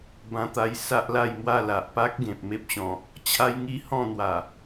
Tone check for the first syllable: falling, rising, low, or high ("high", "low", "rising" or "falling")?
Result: high